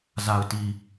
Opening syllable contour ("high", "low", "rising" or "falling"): low